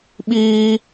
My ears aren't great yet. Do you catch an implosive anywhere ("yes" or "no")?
yes